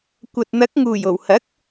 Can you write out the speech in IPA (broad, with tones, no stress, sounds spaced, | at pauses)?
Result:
kʷ ɐ˨ t̚ n̪ ɐ˨˥ k̚ ŋ uː˨˩ j o˨˩ w h ɐ˨˥ k̚